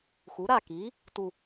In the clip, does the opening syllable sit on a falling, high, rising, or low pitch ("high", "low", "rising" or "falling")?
rising